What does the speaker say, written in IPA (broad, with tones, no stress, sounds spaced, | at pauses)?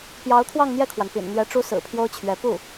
p j ɑ˧˥ ʊ̯ t̪ʰ w ɑ˥˧ ŋ n̪ j ɛ˥˩ kʰ w a˩ n p ḭ˨˩ n n̪ ɥ ɛ˧˥ ʈ͡ʂ u˥ s ɹ̩˨˩ pʰ j o˥ ʊ̯ t͡ɕʰ ɥ ɛ˧˥ p u˥˩